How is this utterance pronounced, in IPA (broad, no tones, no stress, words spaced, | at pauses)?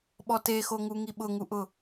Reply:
ɓɔtexoŋu ŋiɓʊŋuʔʊ